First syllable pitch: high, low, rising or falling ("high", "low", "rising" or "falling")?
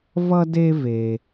high